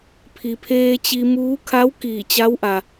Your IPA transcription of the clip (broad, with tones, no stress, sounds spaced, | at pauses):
pʰ i˩ pʰ eː˧ t͡ɕ i˧ m uː˧˥ kʰ a˧˥ w k iː˧˩ t͡ɕ a˧˥ w ʔ a˩